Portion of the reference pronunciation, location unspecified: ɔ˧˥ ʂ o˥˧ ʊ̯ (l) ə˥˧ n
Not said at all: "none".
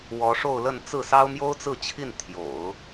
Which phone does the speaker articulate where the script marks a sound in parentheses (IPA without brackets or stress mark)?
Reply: l